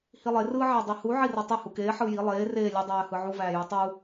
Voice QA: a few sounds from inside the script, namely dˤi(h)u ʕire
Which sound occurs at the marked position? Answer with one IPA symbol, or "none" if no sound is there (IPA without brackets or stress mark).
h